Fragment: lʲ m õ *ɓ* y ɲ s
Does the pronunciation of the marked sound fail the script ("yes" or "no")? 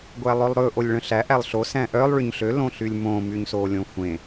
yes